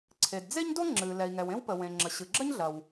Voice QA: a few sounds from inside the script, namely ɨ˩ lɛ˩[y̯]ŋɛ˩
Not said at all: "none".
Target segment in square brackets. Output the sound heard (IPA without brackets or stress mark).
i̯